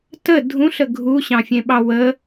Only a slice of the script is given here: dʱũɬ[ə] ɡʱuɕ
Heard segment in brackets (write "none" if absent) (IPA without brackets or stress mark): ə